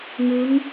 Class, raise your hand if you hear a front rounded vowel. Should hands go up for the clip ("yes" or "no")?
no